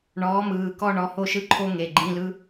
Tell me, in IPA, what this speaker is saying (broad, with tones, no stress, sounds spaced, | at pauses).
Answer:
ɳ ɔː˨˥ m ɯː˩˧˩ k ɔ˥˧ ɳ ɔ˨˥ h o˥˧ ʃ ɯ˥ ǃʰ o˥ ŋ e˩˧˩ ɡ͡ǃ ĩ˧˥˧ l ɯ˧˥˧